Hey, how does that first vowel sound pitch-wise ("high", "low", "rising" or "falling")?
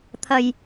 low